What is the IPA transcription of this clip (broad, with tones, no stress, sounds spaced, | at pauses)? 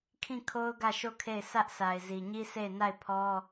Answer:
kʰ ĩ˦˨ kʰ o˦ ʊ̯ ɡ ä˦˨ ʃ o˦˨ kʰ e˦˨ ɪ̯ sʰ ä˦ ʔ sʰ a˨ ɪ̯ z i˨ ɲ i˦ s e˦˨ ɪ̯ n a˦˨ ɪ̯ pʰ ɔ˦